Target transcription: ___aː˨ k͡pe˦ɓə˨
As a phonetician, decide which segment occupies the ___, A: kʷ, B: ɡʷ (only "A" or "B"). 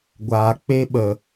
B